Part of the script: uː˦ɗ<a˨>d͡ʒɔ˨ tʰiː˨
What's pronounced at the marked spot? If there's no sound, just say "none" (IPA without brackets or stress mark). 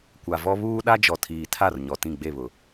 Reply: a˦